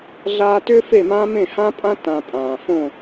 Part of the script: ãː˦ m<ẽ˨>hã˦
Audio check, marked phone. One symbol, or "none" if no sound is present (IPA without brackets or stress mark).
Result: ẽ˦˨